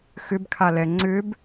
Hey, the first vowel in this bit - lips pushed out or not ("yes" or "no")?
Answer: yes